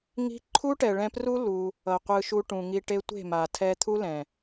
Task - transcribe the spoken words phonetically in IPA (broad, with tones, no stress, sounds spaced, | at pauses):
ŋ i̤˦ ǃʰ u˦ ʈ ɛ˨ ɭ ɛ̃˧ p r u˦ l u˧ | ʌ˨ qʷ ɯ˧ ʃ u˧ ʈ ũ˨ ŋ i˧ ʈ e˦ tʷ e̤˦˨ m a˨ tʰ ɛ˧ t̪ʰ u˦ l ɛ̃˨